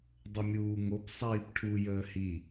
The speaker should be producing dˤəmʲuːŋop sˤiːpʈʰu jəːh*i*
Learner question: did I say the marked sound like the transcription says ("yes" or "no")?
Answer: yes